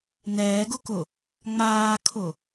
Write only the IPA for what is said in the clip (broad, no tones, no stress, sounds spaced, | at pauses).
n ɛː ɡ ʊ k ʊ | ŋ͡m aː kʰ ʊ